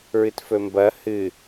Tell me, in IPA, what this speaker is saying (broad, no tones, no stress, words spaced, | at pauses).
ɹɨtfɵmbɐ hɨ